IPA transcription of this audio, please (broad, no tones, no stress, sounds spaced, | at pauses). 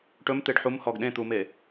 ʈ ɵ m t̪ e ɖ ħ u m h ɔ ɡ ɗ ẽ t̪ u m e